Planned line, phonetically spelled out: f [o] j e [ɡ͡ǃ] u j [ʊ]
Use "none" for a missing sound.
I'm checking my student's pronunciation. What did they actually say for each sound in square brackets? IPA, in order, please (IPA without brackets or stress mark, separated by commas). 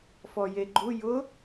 ɔ, ɡ͡ǃ, ʊ